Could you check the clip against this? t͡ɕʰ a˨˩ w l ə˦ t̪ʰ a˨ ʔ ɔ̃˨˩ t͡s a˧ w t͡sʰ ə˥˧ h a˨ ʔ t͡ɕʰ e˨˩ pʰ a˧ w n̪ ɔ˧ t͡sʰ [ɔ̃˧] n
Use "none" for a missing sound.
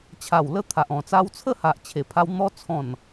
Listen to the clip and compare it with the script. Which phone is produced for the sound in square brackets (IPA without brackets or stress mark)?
ɔ̃˨˩